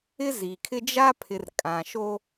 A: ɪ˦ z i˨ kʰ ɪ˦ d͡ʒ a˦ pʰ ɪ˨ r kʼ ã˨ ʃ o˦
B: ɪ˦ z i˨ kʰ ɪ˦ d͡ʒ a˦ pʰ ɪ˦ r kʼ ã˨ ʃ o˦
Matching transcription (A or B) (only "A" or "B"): A